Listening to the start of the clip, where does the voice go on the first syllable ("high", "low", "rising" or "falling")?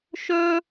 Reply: high